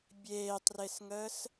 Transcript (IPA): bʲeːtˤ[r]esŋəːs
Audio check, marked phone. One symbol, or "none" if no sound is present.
r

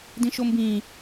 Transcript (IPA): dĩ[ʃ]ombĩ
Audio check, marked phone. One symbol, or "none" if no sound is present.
ʃ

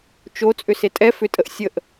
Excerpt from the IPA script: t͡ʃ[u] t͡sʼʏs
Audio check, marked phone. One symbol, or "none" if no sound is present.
o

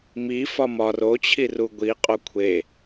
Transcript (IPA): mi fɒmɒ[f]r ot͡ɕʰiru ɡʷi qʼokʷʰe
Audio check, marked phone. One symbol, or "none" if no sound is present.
none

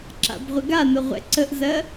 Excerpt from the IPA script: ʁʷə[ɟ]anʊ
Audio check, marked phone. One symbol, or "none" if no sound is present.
ɡ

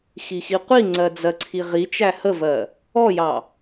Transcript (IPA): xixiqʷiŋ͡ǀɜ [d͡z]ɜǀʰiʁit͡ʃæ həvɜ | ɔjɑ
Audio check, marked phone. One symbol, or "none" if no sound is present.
d͡z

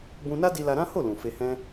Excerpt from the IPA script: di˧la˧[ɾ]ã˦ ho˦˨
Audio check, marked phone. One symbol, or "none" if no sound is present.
ɾ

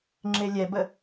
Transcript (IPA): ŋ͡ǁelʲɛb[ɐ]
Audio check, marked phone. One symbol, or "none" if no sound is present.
ə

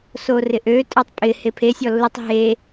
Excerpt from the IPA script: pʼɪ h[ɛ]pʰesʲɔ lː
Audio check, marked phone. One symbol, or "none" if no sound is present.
e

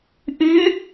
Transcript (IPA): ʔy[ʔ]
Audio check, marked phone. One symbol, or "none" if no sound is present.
none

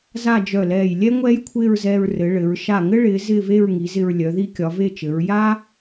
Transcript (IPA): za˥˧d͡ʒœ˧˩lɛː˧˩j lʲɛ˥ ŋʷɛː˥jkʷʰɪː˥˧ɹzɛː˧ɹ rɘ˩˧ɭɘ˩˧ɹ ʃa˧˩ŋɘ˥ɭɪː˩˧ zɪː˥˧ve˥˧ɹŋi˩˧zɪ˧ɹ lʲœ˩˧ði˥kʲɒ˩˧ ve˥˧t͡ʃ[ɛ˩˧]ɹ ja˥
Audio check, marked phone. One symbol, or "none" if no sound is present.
ɘ˩˧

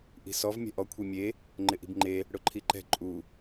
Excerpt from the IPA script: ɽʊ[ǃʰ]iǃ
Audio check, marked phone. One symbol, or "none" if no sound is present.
ǃʰ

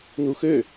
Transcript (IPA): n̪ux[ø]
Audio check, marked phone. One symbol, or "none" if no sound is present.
ø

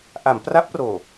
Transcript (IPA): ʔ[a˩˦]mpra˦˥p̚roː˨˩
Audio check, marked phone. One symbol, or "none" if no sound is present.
a˩˦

